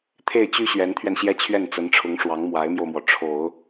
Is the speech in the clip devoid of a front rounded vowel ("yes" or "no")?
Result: no